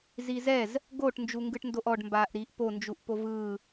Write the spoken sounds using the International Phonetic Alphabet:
zizɛz | ɡoʈ nd͡ʒuŋɡɯʈndoʔɔɖ mbaːʔɾiːʔpo nd͡ʒuʔpovɯː

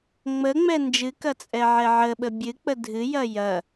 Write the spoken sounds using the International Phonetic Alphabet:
ŋ͡məŋ͡mɛ nd͡ʒɨkɐ t͡sʼɛʕɛʕəɓə bʲɨk͡pə dʱɨjɐ jɐ

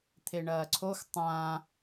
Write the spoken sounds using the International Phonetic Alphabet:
t̪ʰeɳɐːǀʰox tˤã

